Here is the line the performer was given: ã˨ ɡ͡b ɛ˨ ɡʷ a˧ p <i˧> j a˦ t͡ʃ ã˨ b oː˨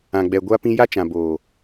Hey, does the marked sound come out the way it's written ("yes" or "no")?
no